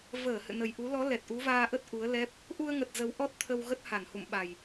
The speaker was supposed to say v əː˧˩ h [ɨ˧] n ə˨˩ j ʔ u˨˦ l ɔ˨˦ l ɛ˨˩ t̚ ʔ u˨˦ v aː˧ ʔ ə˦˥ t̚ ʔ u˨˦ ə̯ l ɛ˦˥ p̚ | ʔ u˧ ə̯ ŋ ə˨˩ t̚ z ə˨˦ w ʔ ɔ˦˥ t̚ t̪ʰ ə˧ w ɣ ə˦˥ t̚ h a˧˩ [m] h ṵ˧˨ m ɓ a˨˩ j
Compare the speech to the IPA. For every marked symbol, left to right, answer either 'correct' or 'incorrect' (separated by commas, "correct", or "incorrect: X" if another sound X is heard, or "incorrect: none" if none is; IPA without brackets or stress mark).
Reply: incorrect: ɨ̰˧˨, incorrect: n